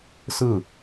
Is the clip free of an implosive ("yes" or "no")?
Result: yes